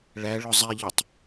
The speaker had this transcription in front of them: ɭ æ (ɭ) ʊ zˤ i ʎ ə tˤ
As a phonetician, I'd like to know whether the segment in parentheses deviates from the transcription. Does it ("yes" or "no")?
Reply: no